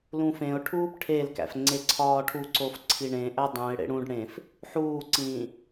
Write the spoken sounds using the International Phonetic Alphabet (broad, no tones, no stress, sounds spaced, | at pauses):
l ũ f ẽ ʊ̯ ʈʰ uː p ʈʰ e l k æ̰ f ŋ͡ǀ e ǀʰ ɒː ʈʰ u ǀ o f ǀʰ i ɳ ẽ ʔ æ dˤ ũ ɪ̯ ɽ ḛ ɽ ũ ɖ ɽ ẽ f | ħ uː ǀ ĩː